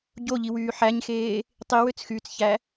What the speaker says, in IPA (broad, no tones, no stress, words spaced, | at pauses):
ɟoʎiwyː ħæɲxeː | tˤiwøt͡sxyːt͡sçæ